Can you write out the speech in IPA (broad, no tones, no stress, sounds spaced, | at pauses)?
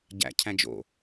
ɟ æ̰ cʰ æ̃ d͡ʒ o̰